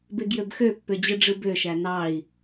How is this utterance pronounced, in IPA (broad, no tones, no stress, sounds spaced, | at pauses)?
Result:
b e ɡ j ø b x ø pː ø d͡ʑ ɯ ɖ͡ʐ ɯ b ø ʃ æ n ɑ i̯